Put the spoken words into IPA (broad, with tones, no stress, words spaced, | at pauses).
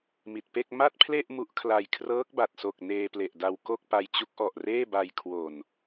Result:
mi˨˩t̚pe˥˩k̚ ma˥˩t̚pʰle˥˩ʔ mu˦˥ʔkʰla˧j kʰrɤː˦˥k̚ba˨˩t̚so˨˩k̚ neː˧ple˨˩ʔda˧w ko˥˩k̚pa˧j t͡ɕu˦˥k̚ʔɔ˨˩ʔreː˥˩ba˧j kʰwo˨˩n